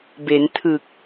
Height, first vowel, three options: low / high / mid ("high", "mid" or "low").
mid